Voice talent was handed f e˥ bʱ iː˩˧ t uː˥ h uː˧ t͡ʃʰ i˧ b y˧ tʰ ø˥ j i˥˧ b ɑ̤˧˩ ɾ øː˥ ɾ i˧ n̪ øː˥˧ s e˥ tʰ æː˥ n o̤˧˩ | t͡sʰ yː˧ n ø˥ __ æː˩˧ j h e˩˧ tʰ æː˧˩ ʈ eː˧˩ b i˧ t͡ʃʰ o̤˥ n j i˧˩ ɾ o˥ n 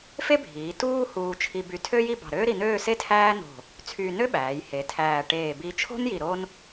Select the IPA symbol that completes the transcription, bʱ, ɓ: ɓ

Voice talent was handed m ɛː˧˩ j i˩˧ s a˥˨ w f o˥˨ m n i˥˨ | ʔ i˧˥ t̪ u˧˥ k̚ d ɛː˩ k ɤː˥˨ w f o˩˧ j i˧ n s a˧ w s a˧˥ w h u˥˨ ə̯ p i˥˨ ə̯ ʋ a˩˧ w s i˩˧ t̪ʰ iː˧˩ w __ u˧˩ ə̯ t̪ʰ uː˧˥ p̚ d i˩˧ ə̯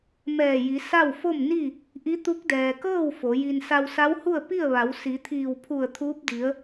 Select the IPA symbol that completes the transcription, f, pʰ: pʰ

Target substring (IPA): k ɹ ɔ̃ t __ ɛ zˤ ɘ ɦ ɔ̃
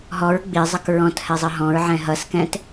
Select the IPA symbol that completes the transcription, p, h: h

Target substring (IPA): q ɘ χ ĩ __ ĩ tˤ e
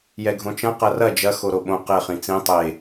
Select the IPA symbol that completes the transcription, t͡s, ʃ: t͡s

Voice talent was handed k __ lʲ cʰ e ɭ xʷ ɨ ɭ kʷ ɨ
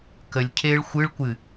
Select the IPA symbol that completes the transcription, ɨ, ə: ə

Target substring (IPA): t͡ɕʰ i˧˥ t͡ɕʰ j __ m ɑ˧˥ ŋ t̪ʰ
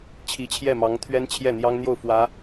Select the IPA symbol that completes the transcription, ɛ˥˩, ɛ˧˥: ɛ˥˩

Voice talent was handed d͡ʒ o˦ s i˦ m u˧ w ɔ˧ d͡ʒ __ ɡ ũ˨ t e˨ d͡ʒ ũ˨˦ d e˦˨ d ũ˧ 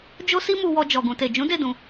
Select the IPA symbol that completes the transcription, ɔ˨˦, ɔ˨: ɔ˨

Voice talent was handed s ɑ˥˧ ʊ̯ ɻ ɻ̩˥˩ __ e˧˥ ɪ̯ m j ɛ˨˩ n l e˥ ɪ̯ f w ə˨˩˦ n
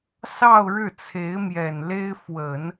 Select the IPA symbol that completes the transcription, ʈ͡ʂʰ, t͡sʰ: t͡sʰ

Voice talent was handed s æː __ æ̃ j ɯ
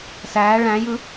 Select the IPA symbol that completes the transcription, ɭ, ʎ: ɭ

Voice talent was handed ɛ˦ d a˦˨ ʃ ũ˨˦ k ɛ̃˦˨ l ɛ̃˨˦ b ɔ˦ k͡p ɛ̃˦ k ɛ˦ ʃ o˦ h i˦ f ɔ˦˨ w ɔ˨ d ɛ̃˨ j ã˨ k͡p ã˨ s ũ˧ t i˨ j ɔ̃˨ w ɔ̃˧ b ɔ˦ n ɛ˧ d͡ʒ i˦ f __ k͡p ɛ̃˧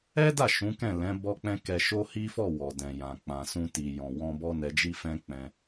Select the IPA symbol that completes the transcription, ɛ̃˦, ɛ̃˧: ɛ̃˦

